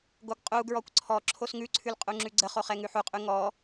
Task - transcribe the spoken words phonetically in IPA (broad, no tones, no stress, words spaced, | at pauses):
ɡoɡqʼuɡɹɔkʷ ǀʰɔ ǁʰosŋʉǀʰʉl qʼuŋ͡ǁʉɡ͡ǀəχo χɛŋʉħuqʼʉ ŋɔ